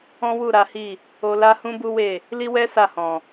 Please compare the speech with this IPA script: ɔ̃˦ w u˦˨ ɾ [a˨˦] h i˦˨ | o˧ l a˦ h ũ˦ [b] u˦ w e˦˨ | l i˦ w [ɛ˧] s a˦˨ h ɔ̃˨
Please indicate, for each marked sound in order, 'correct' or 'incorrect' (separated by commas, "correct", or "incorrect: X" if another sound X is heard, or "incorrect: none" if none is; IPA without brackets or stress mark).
correct, correct, incorrect: ɛ˦